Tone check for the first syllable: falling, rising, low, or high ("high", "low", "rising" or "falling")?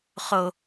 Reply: low